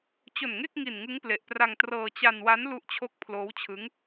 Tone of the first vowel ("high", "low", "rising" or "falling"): low